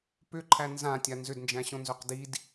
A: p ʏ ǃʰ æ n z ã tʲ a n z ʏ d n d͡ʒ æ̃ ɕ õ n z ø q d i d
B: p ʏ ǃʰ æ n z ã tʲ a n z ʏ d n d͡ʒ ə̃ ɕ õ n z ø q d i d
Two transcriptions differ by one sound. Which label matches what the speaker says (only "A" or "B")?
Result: A